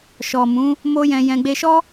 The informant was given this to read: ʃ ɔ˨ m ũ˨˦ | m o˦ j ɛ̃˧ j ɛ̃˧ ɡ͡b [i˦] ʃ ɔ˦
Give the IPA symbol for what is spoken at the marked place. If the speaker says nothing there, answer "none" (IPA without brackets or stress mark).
e˦